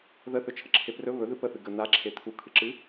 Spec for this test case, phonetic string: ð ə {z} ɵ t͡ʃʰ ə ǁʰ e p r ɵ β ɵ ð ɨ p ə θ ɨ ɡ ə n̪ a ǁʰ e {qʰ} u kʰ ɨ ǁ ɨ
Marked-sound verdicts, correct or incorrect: incorrect, incorrect

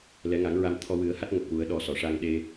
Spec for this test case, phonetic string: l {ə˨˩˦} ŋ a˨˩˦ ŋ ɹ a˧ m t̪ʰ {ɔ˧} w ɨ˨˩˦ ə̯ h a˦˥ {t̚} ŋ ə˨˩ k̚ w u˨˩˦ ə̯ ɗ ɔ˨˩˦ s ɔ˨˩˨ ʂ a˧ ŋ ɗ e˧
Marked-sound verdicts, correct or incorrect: incorrect, correct, correct

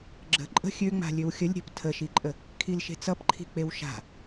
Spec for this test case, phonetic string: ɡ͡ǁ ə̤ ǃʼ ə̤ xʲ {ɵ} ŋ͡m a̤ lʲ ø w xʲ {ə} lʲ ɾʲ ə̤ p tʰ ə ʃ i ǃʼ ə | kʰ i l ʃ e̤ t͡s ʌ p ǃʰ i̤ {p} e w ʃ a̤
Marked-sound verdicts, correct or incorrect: incorrect, correct, incorrect

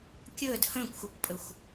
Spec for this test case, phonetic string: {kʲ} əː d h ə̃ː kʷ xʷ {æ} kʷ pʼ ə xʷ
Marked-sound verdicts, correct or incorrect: correct, correct

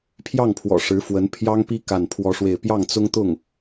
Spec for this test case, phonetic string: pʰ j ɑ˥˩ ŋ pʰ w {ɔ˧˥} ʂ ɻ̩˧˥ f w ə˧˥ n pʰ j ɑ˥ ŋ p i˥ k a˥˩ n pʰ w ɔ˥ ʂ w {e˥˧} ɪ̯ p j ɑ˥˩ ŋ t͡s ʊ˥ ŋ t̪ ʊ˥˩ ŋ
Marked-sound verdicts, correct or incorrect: incorrect, correct

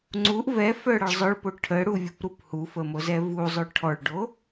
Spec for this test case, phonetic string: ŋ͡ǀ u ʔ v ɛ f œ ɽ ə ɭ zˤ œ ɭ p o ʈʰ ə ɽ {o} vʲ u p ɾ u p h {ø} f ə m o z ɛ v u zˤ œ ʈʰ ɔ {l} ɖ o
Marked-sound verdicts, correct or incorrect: incorrect, incorrect, incorrect

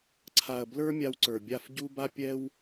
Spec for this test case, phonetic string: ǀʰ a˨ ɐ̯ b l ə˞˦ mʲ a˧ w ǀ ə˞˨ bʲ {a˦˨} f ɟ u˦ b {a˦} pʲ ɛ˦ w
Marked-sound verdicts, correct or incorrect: correct, correct

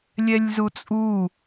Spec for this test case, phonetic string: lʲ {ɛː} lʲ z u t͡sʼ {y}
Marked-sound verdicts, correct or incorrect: incorrect, incorrect

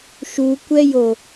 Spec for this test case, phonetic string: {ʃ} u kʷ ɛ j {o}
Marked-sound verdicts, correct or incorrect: correct, correct

